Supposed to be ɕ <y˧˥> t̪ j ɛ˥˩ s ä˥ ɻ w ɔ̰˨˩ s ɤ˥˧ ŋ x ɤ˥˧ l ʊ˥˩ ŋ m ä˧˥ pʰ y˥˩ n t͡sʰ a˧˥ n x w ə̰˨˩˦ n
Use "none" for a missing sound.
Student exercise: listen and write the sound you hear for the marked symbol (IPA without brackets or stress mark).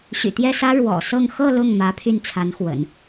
y̰˨˩